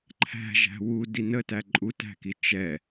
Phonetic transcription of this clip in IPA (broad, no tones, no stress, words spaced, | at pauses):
ǃʰæ̤ʒæ̤ wudi nətæ ǃʼutæ̤ki t͡ʃɛ